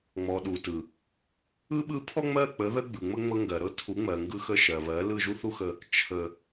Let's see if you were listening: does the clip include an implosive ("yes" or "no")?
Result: yes